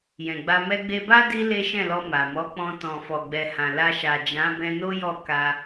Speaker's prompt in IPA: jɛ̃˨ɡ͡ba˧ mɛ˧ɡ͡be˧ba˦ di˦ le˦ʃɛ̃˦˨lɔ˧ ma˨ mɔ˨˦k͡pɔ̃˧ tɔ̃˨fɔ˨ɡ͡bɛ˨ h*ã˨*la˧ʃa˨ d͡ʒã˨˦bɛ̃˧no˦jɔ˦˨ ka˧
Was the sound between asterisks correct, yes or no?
yes